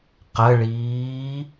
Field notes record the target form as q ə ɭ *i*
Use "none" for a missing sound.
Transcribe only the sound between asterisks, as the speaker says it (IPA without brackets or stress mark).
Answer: iː